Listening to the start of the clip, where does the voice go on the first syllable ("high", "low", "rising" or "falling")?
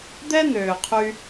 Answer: high